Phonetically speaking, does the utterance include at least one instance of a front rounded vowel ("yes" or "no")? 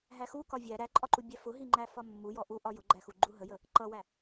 no